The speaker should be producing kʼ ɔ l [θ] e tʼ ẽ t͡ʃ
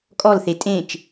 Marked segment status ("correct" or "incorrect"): correct